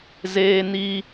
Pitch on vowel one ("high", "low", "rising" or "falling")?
high